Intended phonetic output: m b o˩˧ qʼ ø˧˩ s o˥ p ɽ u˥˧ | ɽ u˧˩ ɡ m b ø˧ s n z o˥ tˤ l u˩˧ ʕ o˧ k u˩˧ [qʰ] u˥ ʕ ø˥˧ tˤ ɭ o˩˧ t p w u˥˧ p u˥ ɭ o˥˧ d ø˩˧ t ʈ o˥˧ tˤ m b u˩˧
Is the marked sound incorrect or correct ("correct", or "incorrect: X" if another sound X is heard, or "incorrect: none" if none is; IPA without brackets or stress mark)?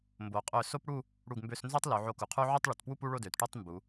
correct